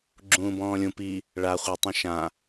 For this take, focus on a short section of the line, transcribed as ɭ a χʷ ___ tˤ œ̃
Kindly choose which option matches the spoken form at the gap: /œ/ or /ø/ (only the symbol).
œ